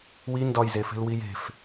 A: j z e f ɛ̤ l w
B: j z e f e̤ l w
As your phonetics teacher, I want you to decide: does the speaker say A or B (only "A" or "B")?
B